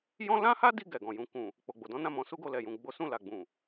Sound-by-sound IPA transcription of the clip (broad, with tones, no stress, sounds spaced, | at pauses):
j ɔ̃˦ l ã˦ h a˦ d i˧ ɡ ɛ˨ ɡ ɔ̃˨ j ũ˨ k ũ˨ | k͡p o˨ ɡ͡b o˨ d ɔ̃˨˦ n ã˦˨ m ɔ̃˨˦ s u˦ ɡ o˧ l ɛ˨ j ũ˨ ɡ͡b o˨˦ s ũ˦˨ l a˨ ɡ͡b ũ˨